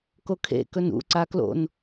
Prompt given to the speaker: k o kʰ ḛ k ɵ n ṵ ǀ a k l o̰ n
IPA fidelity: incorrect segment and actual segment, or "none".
none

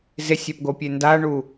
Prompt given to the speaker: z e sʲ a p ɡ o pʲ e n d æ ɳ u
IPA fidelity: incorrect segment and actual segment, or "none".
æ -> a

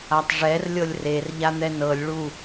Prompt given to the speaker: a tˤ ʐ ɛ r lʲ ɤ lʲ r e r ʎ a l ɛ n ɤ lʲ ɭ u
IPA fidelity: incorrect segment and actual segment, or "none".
l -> n̪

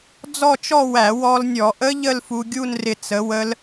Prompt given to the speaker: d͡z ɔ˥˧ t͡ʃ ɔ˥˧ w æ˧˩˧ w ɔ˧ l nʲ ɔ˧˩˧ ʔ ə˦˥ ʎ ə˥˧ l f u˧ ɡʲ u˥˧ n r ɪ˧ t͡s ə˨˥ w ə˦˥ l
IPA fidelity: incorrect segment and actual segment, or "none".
none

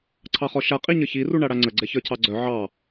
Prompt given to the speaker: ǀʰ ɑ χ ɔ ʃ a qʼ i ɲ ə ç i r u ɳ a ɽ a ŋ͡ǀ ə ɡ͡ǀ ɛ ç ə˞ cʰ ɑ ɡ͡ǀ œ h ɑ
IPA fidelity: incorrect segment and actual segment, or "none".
h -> ʕ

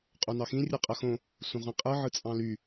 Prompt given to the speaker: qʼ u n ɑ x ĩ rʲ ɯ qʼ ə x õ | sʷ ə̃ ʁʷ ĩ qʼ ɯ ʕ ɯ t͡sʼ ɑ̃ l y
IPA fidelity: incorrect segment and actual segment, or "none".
none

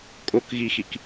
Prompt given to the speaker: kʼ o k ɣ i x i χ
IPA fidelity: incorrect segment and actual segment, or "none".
χ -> k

